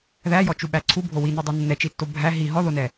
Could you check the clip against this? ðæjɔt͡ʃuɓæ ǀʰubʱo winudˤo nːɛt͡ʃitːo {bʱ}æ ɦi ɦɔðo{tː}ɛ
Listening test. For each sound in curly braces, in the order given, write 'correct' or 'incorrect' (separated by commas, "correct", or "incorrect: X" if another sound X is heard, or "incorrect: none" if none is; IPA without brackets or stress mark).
correct, incorrect: n